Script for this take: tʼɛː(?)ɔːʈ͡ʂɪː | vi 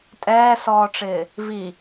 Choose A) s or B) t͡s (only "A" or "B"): A